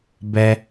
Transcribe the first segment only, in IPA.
b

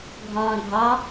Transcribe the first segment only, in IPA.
ɡʱ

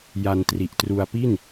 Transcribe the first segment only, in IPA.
j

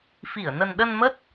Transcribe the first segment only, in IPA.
f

